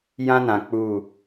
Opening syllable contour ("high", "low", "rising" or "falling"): high